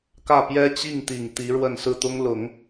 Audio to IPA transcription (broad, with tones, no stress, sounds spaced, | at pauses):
k ä˥˩ p j ɛ˥ t͡ɕ i˥˩ ŋ t̪ i˨˩ ŋ t̪ i˧˥ ɻ w ə˥˧ n s ɹ̩˥˩ t̪ ʊ˥ ŋ l ʊ˨˩˦ ŋ